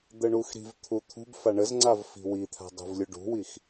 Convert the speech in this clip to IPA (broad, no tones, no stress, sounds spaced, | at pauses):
d̪ ə ɳ u x ɾ i̤ v t̪ʰ u t̪ʰ ṳ b f a ɳ ə z ŋ͡ǀ a v f i̤ w i t̪ʰ a̤ dˤ ṳ v lʲ u ɖ ṳ w i x